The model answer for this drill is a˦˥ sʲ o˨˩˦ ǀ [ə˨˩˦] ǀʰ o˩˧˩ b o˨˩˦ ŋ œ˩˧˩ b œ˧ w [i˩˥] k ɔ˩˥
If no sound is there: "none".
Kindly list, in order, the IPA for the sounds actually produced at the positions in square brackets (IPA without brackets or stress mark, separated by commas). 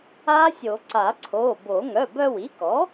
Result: a˨˩˦, i˩˥